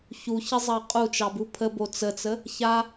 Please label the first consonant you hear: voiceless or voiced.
voiceless